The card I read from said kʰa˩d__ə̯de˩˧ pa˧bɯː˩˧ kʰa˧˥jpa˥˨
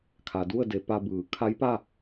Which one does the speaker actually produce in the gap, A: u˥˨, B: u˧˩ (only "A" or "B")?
A